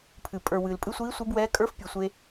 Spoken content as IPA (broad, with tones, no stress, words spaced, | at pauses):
pʰɨ˨˩ pʼə˞˨˩ wɨː˨˩lpʼɨ˧˥sʷiː˧˥ sʷi˧˥bwɛː˧˥ kʼə˞˧˥fpʲɨ˨˩sʷe˧